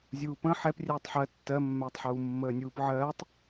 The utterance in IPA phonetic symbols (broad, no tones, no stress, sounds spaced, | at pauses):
zʲ uː p ə̃ ħ ɛ p rʲ ɛː tˤ ħ ɜ tː ɜ mː ɛː tˤ ħ uː mː əː nʲ uː p ʕ ɜː tˤ